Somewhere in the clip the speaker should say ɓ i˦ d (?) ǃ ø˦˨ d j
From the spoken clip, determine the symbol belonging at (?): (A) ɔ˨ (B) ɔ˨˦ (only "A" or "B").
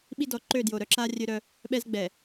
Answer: B